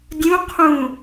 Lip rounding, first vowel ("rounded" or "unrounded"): rounded